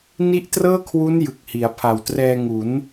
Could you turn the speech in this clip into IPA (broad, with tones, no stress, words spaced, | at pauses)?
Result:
ni˦˥ʔtrɤː˥˩kʰwu˦˥n jɯ˨˩k̚hi˩˦a̯ pʰa˨˩wtrɛː˧ŋu˩˦n